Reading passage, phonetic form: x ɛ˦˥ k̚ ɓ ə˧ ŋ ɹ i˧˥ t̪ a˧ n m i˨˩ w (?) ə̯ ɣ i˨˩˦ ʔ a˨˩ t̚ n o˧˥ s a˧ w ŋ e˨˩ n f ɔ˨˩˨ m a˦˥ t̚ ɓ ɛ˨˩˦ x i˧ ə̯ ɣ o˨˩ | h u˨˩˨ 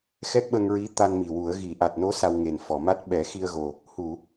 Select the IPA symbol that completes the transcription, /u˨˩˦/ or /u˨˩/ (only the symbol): u˨˩˦